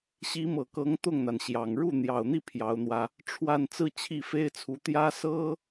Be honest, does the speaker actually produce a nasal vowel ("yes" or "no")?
no